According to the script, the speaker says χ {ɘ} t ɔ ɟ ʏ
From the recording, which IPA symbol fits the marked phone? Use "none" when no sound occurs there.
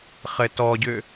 ɘ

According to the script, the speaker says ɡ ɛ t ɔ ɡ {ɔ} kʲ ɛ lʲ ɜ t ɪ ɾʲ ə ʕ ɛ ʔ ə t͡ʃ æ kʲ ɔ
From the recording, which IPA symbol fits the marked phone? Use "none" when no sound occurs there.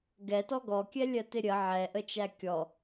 ɔ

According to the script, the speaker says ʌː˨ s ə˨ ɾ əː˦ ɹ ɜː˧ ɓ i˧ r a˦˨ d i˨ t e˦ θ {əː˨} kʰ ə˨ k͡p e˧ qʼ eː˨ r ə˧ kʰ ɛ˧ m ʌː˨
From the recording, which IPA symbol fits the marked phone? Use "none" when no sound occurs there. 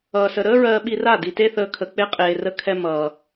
əː˧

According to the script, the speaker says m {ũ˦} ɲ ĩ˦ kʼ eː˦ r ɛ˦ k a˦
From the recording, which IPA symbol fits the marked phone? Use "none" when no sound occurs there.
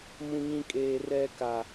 ũ˦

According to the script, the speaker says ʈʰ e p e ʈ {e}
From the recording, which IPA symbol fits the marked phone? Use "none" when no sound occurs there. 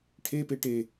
e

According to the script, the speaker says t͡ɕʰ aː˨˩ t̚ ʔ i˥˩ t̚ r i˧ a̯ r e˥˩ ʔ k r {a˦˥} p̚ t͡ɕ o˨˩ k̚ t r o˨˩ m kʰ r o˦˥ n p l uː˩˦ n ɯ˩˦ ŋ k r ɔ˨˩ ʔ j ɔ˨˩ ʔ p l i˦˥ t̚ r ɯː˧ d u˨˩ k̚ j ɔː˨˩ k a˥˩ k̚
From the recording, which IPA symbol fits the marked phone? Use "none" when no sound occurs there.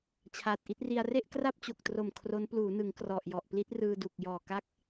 a˥˩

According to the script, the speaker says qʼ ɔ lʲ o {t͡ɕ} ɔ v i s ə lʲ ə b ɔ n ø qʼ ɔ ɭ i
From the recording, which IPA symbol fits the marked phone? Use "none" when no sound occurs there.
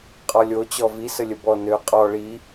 t͡ɕ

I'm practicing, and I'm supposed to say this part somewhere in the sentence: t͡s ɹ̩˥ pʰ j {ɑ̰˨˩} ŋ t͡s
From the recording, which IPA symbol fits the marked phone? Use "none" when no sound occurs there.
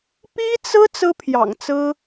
ɑ̰˨˩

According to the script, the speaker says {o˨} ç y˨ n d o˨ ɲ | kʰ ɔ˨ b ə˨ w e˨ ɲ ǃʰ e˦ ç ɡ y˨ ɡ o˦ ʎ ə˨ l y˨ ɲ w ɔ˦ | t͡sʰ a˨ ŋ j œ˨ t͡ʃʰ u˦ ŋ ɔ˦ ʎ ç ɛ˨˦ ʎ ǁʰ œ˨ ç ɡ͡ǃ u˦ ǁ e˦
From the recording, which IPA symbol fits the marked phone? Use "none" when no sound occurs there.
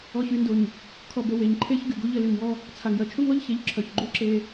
ɔ˨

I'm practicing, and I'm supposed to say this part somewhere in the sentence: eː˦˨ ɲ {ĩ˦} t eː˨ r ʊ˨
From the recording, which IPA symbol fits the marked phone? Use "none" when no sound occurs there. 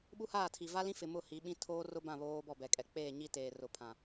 i˦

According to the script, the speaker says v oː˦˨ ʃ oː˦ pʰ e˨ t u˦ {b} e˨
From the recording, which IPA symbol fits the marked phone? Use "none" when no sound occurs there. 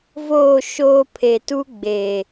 ɡ͡b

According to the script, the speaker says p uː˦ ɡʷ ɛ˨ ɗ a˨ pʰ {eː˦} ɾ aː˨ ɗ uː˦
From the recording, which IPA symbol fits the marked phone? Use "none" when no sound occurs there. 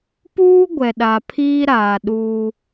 iː˦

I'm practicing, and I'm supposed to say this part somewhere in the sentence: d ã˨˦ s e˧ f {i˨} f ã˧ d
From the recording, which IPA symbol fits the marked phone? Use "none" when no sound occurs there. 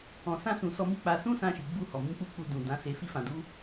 i˦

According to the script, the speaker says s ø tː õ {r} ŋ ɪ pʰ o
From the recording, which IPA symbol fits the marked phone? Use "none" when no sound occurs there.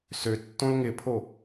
l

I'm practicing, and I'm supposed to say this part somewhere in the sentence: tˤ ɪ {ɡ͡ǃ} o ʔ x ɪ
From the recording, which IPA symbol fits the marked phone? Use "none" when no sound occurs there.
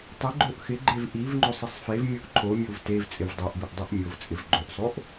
ɡ͡ǃ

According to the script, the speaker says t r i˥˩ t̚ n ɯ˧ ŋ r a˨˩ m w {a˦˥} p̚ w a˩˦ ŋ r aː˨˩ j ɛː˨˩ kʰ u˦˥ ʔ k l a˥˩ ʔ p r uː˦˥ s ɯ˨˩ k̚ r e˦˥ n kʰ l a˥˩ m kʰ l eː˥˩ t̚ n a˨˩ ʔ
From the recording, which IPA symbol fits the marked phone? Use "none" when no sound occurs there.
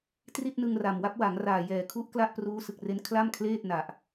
a˦˥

